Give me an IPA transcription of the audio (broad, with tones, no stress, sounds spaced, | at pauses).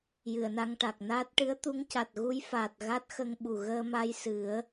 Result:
j ɨ˨˩˨ ə̯ n a˧ ŋ ʈ a˨˩ k̚ n aː˦˥ t̚ ʈ ɨ˧˥ ə̯ t̪ u˧˥ ŋ c a˨˩ t̚ ɣ u˧˥ j f a˨˩ t̚ ɣ a˦˥ t̚ x ə˧ ŋ ɓ u˨˩ ɣ əː˧ m a˧ j s ɨ˨˩˦ ə̯